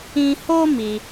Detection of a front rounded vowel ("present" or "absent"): absent